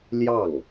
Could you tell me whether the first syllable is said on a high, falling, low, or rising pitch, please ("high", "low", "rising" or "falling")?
falling